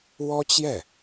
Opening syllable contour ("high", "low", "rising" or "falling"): high